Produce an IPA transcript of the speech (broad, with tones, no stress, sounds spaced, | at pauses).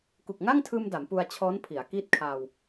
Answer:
k u˨˩ k̚ ŋ a˥˩ ŋ tʰ ɯː˧ m d a˩˦ m p u˧ a̯ t͡ɕʰ ɔː˦˥ n pʰ i˩˦ a̯ k i˥˩ t̚ kʰ aː˧ w